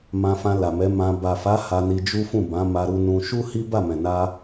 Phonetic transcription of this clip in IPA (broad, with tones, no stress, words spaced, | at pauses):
mã˧fã˧ la˨mɛ˨˦ mã˧ ba˨fa˨˦ ha˧ni˧d͡ʒu˦fũ˦˨ bã˨˦ma˧ɾu˧nũ˧ ʃu˦ hi˦ba˦˨mɛ̃˨na˧